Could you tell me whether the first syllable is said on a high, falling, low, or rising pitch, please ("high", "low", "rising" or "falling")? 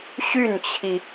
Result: falling